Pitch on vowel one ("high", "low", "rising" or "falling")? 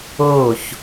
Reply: falling